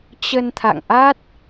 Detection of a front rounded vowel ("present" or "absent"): absent